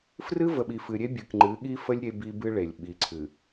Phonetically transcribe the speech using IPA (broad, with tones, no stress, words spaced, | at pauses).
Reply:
frɨ˦və˨ɓi˨ fɨ˨ɾʲe˦ bʲɨ˨kŋ͡ǃɨ˨˦ɠi˦fə˦lʲ ɾʲe˦bi˦bɨ˦ɭe˨lʲ ɓi˨ǀʰɨ˨